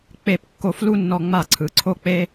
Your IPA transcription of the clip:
k͡p e˧˩˧ p kː o˧˩ f l u˥˨ nː ɔ˧˩˧ ŋ͡m a˧˩˧ ǀʰ ɯ˩˧˩ ǀʰ o˥˨ k͡p e˥

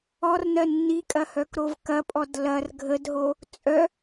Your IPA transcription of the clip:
ɔ r n ɜ nː i kʼ ɐ h œ k ɾ o v k ɐ pʼ ɔ d l ɐ r ɡʱ ə d ɦ o | t͡sʼ œ

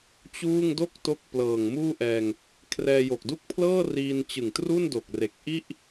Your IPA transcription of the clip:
t͡ɕ uː˥˩ ŋ d o˥˩ k̚ t o˦˥ k̚ p l ɤː˨˩ ŋ m uː˥˩ ʔ ɛː˧ ŋ | kʰ r ɛː˧ j o˨˩ k̚ d u˥˩ k̚ pʰ l ɤː˥˩ r iː˧ n t͡ɕ ɯ˨˩ ŋ t r u˥˩ n d o˨˩ k̚ r e˨˩ k̚ ʔ i˥˩ ʔ

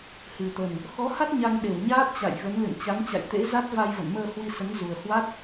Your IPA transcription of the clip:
h ɨ˨˩ t̪ ə˨˩ n | x ɔ˨˦ h a˦˥ t̚ ɲ a˧ ŋ ɗ e˧˩ w ɲ aː˦˥ t̚ t͡ɕ a̰˧˨ j ɣ ə˨˦ n l ɨ̰˧˨ n t͡ɕ a˨˦ ŋ t͡ɕ a̰˧˨ j t̪ ḛ˧˥ z a˦˥ t̚ v a˧ j v ə̰˧˨ n m əː˧ h w i˧ s ə˨˦ n z u˨˩ ə̯ h w a˦˥ t̚

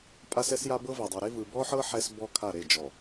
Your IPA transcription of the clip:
pʼ a˦ s ɛ˦ s j a˦ b ɤ˦ v e˨ dˤ ɯ˨ ɾ e˦ v ɯ˨ b ɔ˦ ħ ɤ˦ ħ ɛ˦ s b ɔ˦ kʰ a˦˨ ɾ e˦˨ d͡ʒ ɔ˨

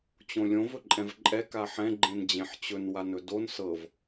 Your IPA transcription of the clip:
t͡ɕ õ lʲ õ v ɵ ǃʼ ɛ̃ v ǃʼ ɛ k a ħ ɛ̃ ɡ͡ǃ ẽ n d͡ʑ ẽ ħ t͡ɕ ɵ n w a n ɵ d o n s ɤ v

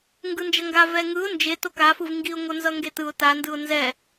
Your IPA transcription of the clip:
ŋ ɡ ɯ n d͡ʒ ʌ ŋ ɡ a v ɛ ŋ ɯ ʊ̯ n d͡ʒ e t o k a f ɯ v ŋ ɡ i ʊ̯ ŋ o n z ʌ ŋ ɡ e t ɯ ʊ̯ t a n d ɯ ʊ̯ n z ɛ

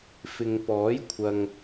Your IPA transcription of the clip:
f ɪ˨ ŋ p ɔː˨˥ j kʷʰ ɐ˨ ŋ

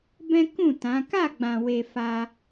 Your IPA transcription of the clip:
b ɛ̃˦ k ũ˦˨ t ã˨˦ k a˦˨ ɡ͡b ã˨ w e˨ f a˧

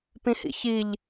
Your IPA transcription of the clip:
p ĩ h ḭ ç i ʎ

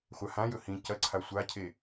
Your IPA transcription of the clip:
χʷ a h ã j ɵ h ĩ c ɐ ǀʰ a sʷ a cʰ e

